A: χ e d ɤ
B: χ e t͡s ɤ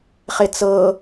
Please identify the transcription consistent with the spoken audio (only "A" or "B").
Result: B